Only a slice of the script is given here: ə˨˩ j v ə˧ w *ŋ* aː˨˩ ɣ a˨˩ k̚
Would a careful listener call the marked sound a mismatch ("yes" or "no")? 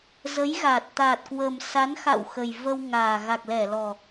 no